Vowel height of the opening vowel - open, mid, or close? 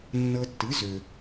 mid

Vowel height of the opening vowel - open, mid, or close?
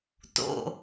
mid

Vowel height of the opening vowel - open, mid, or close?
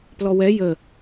mid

